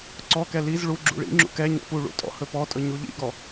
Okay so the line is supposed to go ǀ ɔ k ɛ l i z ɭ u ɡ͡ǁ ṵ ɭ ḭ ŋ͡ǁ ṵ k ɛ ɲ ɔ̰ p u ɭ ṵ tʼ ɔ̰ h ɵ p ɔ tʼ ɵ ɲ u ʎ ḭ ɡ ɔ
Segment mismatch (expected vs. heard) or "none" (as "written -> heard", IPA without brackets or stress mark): none